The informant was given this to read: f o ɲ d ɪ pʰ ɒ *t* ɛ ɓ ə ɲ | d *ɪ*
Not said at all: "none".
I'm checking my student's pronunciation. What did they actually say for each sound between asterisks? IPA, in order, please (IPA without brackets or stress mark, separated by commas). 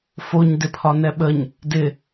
n, ɪ